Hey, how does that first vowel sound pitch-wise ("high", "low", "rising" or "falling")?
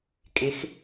rising